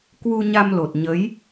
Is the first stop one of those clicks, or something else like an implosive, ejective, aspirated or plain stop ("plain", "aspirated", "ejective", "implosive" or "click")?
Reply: plain